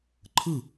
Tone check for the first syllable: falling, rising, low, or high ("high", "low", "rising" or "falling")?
falling